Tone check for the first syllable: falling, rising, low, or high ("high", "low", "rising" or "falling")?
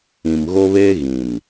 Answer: low